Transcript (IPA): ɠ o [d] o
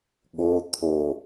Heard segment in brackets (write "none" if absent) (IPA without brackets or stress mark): t̪ʰ